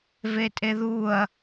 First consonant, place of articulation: labial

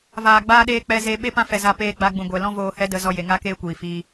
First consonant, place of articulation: labial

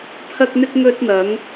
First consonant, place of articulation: labial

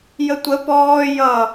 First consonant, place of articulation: palatal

